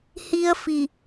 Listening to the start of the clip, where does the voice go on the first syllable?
high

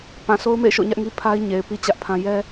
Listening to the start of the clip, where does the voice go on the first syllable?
low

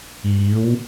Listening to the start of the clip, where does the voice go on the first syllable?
rising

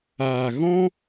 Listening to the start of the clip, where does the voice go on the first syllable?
low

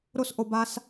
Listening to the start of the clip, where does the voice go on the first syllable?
high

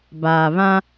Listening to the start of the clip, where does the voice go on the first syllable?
low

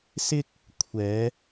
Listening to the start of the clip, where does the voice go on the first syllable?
high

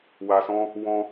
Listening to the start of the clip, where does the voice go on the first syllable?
low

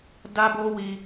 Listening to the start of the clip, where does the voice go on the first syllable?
high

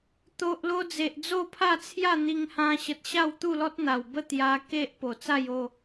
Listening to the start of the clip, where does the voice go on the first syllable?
low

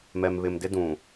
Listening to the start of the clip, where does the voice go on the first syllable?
low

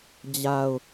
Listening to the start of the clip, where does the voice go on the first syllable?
low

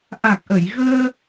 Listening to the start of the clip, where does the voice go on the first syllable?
low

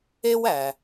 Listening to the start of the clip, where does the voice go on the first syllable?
high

